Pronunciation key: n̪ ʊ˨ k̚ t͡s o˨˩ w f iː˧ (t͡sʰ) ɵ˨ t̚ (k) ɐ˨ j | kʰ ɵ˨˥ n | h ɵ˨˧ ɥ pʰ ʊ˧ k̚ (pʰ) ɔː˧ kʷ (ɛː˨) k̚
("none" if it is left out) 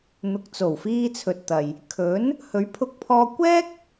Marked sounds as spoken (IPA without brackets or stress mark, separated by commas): t͡sʰ, t̪, pʰ, ɛː˥